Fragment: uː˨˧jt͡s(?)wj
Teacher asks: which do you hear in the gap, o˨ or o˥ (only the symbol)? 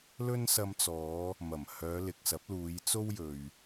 o˥